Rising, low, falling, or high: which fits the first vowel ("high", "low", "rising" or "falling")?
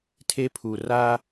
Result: high